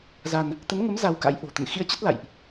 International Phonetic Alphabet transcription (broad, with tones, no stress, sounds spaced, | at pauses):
z a˧ n | t̪ ə˨˦ n ŋ ə˨˦ m z a˧ w k a̰˧˥ j ʔ o̤˨˩ t̪ ə̰˧˨ n x ḭ˧˥ ə̯ t͡ɕ ə˦˥ t̚ l a̰˧˨ j ʔ